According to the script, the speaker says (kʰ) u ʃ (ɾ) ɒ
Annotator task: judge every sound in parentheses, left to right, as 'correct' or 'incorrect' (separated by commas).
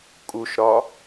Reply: incorrect, correct